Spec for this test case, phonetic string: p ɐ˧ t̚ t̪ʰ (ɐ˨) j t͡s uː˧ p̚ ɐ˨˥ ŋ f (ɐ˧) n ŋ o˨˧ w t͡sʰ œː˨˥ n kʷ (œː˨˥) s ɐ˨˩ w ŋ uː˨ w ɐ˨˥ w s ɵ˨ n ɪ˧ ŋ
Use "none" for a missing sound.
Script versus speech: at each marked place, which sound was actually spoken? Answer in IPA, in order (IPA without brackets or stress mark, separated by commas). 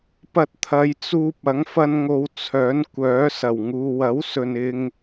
ɐ˨˧, ɐ˧, œː˨˥